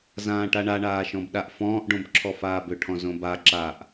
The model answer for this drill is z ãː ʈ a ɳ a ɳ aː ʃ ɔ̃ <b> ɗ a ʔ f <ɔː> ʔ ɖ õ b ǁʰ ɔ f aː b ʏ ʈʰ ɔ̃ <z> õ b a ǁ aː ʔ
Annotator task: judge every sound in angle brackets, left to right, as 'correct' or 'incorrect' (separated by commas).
correct, incorrect, correct